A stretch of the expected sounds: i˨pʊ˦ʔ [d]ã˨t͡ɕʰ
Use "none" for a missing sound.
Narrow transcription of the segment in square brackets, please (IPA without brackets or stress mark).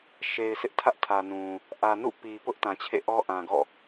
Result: t